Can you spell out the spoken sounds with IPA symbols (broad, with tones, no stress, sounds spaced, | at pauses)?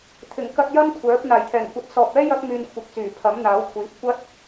t̪ʰ ɪ˨˩ ŋ k ɐ˧ t̚ j ɐ˥ m kʷʰ œː˨˥ p̚ n̪ aː˨˩ j t̪ʰ ɛː˨˩ ŋ kʷ ɐ˨˥ t̚ s ɔː˨ p̚ ɛː˥ j ɐ˥ k̚ m yː˧ n kʷʰ ɪ˨˥ k̚ t͡s yː˨˩ pʰ ɐ˨˥ m n̪ aː˨˥ w kʷʰ iː˨˥ p̚ kʷ ɐ˥ t̚